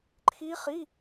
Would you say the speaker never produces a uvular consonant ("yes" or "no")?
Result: no